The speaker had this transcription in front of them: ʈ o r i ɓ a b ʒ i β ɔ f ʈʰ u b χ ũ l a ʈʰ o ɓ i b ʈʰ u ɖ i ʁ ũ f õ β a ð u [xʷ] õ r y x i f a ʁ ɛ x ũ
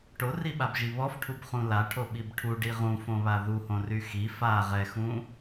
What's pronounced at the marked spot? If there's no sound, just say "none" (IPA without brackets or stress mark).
h